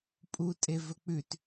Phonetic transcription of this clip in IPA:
pʼ u tʼ e v ɵ k͡p ʉ t

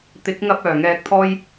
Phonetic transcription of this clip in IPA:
t̪ ɪ˨˥ k̚ ŋ ɐ˧ p̚ œː˨˩ ŋ ɛː˧ k̚ t̪ʰ ɔː˥ j

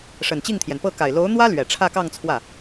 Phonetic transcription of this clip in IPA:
ʂ ə˨˩ n t͡ɕ i˥˩ ŋ t̪ʰ j ɛ˩ n p ɤ˥˩ k a˨˩ ɪ̯ l o˧˥ ʊ̯ n̪ w ä˥ l ɥ ɛ˨˩ ʈ͡ʂʰ ä˥˧ k ɑ˥˧ ŋ t͡sʰ w ä˥˩

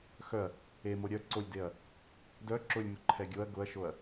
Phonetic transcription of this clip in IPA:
x œ ɐ̯ | e m o ɾʲ œ ǀ o lʲ d e ɐ̯ | d œ ǁ ʊ lʲ m ʊ ǃʰ ɛ ɡʲ o ɐ̯ ɡ ʊ ɐ̯ ʃ o ɐ̯

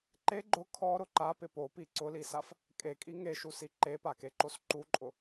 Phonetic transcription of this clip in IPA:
ǃ e ɡ͡ǃ ʊ kʰ ɔ ɾ ʊ ǃ a p ɪ p o p i ǀ ʊ l i s a f | kʼ e kʼ i ŋ e ʃ u s i ǃ e p a k e ǃ o s ǃ u ǃʼ ʊ

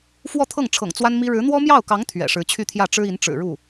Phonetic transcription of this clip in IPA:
f w ɔ˥˧ t̪ʰ ɤ˥˩ ŋ ʈ͡ʂʰ ɤ̰˨˩ ŋ t͡s w a˥ n m i˥ ɻ ɻ̩˧˥ n̪ w ɔ˥ m j ɑ˥˩ ʊ̯ k ɑ˧˥ ŋ t̪ʰ ɥ ɛ̰˨˩ ʂ ɻ̩˧˥ t͡ɕʰ y˥˧ t̪ʰ j ä˥˩ ʈ͡ʂ ɻ̩˥ i˧˥ n ʈ͡ʂ ɻ̩˨˩ ɻ u˥˩

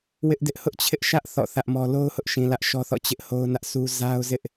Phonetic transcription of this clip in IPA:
w ɪ˦ ʔ d ɪ˦ ʔ h ʊ˦ ʔ t͡ɕʰ ɪ˦ ʔ ʃ ä˦ ʔ θ ɔ̰˦˨ θ ä˦ ʔ m ɔ˦ l o˦ ʊ̯ h ʊ˦ ʔ ʃ ĩ˨ l ä˦ ʔ ʃ ɔ˦ θ ɔ̰˦˨ t͡ɕ ɪ˦ ʔ h o˦ ʊ̯ n ä˦ ʔ s u˦ z a˦ ʊ̯ z ɪ˦ ʔ

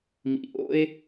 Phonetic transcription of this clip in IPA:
m ḭ˨ ʔ o̰˦ e̯

